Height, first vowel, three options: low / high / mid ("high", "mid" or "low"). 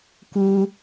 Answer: high